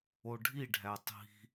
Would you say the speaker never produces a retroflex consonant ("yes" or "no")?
no